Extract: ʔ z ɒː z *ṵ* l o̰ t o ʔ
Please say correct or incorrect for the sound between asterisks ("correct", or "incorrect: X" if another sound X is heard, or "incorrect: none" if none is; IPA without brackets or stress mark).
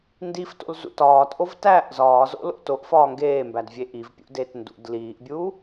incorrect: o̰